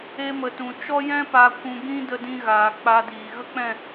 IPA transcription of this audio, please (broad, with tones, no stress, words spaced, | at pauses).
e˧mə˨tũ˨ t͡ʃɔ˧jɛ̃˧pa˨kʷũ˨ ɡĩ˦də˧dĩ˧ ɣaː˨k͡pa˧diː˨ ɣə˦k͡pɛ̃˦˨